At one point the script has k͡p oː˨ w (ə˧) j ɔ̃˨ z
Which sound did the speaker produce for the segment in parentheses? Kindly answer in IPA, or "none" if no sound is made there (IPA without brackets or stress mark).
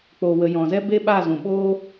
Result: ə˨